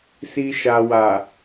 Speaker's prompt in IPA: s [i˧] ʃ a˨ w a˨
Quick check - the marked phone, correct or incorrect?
correct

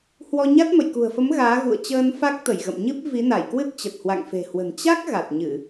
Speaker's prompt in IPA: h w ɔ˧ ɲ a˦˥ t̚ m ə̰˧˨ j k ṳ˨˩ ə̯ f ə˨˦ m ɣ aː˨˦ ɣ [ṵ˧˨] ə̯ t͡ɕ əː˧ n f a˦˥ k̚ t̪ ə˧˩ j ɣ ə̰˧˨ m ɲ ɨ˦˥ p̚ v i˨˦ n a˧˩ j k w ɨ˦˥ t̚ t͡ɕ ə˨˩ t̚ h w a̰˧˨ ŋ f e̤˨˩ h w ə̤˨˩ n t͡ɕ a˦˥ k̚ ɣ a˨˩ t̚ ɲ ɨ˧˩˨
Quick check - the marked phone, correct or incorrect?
correct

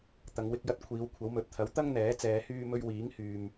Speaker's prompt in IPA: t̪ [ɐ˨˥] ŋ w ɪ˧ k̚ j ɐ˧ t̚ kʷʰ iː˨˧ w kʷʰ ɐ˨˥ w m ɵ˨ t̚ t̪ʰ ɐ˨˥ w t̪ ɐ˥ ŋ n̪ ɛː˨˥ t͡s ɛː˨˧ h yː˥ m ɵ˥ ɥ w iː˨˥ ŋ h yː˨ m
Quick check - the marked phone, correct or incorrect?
incorrect: ɐ˨˧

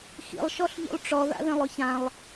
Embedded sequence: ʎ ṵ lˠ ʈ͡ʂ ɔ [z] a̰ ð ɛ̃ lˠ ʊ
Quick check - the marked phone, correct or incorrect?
incorrect: ð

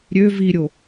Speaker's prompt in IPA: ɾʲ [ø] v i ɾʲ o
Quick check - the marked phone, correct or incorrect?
correct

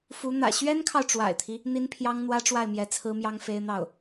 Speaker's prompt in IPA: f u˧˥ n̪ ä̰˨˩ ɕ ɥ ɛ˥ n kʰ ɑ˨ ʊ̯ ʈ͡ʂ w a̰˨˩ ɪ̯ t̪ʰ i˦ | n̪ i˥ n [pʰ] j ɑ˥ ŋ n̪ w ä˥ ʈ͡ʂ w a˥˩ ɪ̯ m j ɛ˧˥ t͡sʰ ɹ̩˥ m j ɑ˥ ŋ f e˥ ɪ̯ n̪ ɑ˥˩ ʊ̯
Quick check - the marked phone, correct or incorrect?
correct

